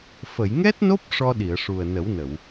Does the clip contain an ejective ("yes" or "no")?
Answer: no